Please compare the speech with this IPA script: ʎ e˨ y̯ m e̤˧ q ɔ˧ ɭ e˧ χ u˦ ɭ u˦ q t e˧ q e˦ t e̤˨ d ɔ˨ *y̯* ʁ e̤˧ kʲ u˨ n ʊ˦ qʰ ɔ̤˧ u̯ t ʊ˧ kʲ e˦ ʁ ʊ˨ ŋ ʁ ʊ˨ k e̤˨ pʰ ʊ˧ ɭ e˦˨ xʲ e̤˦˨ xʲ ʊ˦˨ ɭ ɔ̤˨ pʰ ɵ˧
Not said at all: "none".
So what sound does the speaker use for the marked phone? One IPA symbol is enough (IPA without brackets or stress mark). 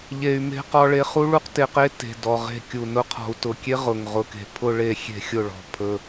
none